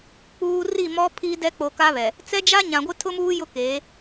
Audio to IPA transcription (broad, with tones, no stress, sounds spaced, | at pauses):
k͡p uː˨ r i˦˨ m ɔ˦ pʰ i˦ d ɛ˦ k͡p o˨ k a˦ β ɛ˨ | t͡s ɛ˦ d͡ʒ a˦ ɲ ã˨ ɡʷ ɪ˦ tʰ ʊ˦ m uː˦ j ʊ˦ k eː˨˦